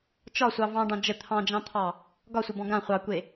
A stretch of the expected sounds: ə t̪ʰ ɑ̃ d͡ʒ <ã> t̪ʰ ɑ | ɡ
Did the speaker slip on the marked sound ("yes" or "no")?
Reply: yes